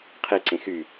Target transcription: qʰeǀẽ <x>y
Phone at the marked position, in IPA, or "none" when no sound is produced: x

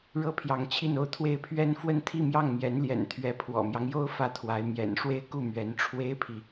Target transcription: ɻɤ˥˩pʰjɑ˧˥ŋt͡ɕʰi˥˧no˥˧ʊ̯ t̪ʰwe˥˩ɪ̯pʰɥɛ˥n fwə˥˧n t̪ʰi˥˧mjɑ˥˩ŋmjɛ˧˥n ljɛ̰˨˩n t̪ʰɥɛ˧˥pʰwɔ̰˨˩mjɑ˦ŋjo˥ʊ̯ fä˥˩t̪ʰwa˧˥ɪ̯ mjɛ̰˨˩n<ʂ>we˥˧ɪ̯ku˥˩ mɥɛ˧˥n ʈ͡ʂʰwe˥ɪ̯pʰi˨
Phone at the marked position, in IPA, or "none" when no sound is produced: ʂ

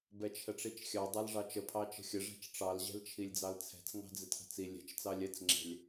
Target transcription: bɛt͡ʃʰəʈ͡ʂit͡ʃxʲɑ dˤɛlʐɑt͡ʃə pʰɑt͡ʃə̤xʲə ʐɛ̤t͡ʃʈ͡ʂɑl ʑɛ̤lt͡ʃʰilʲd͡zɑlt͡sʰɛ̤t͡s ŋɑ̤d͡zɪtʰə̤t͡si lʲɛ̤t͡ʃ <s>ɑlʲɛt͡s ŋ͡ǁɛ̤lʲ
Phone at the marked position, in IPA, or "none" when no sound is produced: t͡s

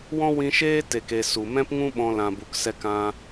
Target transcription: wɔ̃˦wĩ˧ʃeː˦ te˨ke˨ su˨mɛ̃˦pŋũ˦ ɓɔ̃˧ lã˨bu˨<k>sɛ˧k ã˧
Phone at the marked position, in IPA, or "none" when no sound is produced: k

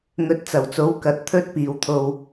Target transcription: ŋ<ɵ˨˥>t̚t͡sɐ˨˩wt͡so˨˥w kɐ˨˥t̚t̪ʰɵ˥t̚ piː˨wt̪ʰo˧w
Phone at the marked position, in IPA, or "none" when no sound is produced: ɵ˨˥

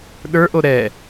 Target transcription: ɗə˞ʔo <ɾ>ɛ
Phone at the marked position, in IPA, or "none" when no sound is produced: ɾ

